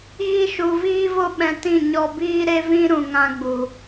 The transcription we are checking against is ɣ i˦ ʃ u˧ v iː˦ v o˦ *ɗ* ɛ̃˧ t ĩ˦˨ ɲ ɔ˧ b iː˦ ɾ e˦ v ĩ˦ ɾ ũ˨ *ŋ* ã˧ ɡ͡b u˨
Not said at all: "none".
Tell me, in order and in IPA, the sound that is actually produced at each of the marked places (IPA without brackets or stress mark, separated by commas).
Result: ɓ, ŋ